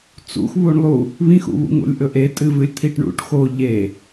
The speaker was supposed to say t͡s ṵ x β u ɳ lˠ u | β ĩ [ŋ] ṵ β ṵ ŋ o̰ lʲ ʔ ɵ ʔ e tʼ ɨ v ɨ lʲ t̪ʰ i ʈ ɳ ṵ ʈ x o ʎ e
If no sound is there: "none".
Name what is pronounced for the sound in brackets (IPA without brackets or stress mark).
x